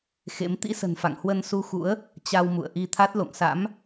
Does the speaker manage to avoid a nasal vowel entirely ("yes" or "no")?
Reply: yes